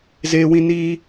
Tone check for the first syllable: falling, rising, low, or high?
high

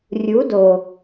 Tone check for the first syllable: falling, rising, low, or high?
rising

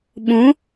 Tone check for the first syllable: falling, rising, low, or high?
rising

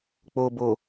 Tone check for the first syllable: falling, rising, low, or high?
low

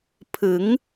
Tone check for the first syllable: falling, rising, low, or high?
rising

